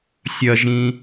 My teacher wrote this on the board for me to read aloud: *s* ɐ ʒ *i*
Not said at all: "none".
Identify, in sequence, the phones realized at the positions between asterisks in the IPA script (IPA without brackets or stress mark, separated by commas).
sʲ, ĩ